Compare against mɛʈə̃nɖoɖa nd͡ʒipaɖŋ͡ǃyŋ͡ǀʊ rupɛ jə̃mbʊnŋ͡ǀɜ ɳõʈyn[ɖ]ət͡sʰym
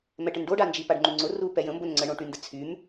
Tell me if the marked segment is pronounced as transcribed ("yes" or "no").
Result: no